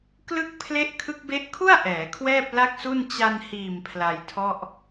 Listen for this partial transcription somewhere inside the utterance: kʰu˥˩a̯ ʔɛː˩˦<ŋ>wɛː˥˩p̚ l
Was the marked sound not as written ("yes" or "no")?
yes